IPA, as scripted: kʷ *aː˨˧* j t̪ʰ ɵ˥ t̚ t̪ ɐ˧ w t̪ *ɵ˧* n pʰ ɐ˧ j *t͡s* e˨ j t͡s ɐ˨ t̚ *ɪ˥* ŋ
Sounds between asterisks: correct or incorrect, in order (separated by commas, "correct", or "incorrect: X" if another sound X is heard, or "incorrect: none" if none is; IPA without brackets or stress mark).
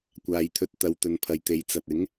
correct, correct, incorrect: t̪, incorrect: ɪ˨˥